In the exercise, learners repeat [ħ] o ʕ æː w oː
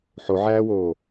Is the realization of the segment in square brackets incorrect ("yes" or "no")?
no